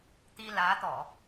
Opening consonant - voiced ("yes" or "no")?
no